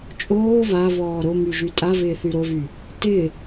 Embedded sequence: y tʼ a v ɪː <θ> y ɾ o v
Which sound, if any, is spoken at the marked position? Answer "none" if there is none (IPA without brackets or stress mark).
θ